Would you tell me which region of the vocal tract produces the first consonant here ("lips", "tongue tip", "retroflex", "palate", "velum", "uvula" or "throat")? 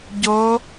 palate